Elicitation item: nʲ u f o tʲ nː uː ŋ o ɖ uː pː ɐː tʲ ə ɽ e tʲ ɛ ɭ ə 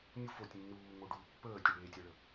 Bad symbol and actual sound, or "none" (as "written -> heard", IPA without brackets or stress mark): ɐː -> əː